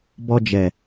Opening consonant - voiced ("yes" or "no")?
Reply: yes